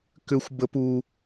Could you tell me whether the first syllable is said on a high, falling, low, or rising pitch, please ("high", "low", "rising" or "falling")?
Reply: high